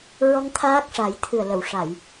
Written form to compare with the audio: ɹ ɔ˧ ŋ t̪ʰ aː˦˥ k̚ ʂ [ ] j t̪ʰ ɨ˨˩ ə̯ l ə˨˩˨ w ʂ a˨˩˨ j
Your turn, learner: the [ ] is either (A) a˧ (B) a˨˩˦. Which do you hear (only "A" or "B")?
B